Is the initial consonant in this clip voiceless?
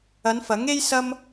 no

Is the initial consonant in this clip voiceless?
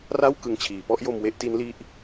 no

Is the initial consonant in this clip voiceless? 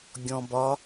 no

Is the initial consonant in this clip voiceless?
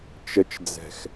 yes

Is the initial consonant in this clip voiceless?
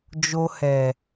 no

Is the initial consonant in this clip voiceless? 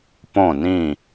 yes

